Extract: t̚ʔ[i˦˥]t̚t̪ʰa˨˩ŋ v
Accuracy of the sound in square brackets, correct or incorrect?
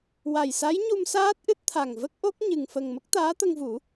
incorrect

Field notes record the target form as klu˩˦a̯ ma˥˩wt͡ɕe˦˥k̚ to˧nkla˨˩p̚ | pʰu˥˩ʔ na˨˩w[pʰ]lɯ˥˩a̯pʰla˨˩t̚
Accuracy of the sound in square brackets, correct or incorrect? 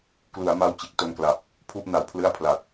correct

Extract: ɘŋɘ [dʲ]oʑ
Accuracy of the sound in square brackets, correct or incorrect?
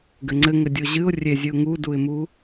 correct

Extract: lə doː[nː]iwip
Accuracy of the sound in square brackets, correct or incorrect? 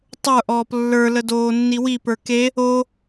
correct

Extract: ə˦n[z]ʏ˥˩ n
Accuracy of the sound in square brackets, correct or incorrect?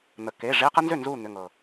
correct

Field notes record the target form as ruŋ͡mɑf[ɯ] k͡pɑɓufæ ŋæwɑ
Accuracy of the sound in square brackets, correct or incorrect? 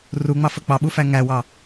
incorrect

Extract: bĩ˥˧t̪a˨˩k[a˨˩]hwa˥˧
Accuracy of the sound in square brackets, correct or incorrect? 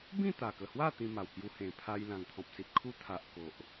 incorrect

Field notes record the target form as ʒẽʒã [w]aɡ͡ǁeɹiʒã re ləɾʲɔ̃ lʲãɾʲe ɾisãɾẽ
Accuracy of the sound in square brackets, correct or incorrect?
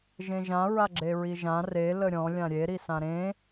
incorrect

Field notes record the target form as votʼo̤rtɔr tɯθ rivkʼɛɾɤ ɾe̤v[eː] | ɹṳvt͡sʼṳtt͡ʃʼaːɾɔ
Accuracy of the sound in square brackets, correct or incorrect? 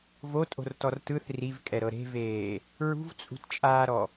correct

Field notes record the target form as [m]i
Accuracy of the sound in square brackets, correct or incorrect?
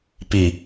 incorrect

